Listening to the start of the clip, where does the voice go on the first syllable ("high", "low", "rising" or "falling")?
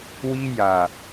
high